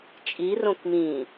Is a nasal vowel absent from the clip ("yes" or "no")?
no